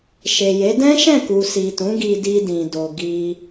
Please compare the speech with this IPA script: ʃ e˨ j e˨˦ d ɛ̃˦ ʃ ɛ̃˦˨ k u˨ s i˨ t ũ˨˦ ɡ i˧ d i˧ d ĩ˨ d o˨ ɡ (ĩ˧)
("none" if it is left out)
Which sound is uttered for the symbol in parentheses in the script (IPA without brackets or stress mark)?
i˧